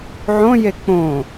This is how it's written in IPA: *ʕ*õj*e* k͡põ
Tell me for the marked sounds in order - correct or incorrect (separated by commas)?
correct, correct